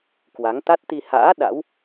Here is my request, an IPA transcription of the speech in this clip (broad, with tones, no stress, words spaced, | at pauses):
kwa˨˦ŋ t̪a˦˥t̚t̪i˧ ha̰ː˧˥ ɗa̰˧˥w